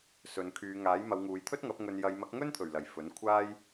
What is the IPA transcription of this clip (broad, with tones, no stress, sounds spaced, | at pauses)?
s ɵ˨˧ n kʰ yː˨˧ ŋ aː˨˥ j m ɐ˨˧ w ŋ uː˨˧ j t̪ʰ ɵ˥ t̚ ŋ ɐ˨˥ p̚ ŋ ɵ˨ n j ɐ˨˧ j m ɐ˨˥ k̚ ŋ ɵ˥ n t̪ʰ ɵ˨˩ ɥ l ɐ˨˩ j f ɵ˨˥ n kʷʰ aː˥ j